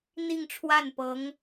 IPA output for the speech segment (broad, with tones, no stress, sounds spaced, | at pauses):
n̪ i˥˧ ŋ ʈ͡ʂʰ w a˥˩ n p ɤ˧˥ ŋ